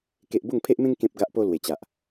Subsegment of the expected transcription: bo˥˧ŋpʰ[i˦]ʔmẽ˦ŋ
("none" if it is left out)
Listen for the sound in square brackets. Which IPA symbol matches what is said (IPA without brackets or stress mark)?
e˦